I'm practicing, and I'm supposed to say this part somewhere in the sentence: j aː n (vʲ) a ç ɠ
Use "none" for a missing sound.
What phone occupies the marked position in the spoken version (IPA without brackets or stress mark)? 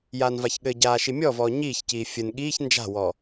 v